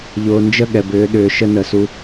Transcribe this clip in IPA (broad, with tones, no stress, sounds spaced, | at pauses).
ʎ ʊː˨ n d͡ʒ ə˦˨ ɠ ɛ˨ b ʏː˨˦ ɗ ʏː˨ ʃ ə˦ n ə˨ s u˦